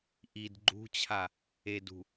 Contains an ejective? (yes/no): no